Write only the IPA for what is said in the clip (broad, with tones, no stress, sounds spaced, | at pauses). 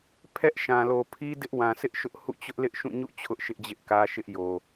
pʰ ɛ˦ ʔ ʃ ã˨ l o˨ pʰ i˦ d ɪ˦ ʔ w ã˨ sʰ ɪ˦ ʔ ʃ ʊ˦ ʔ h ṵ˦˨ t͡ɕ ʊ˦ ʔ l ɪ˦ ʔ ʃ ũ˦˨ ɲ ṵ˦˨ t͡ɕʰ ʊ˦ ʔ ʃ ɪ˦ ʔ d͡ʑ ɪ˦ ʔ k ä˦ ʃ ɪ˦ ʔ j o˨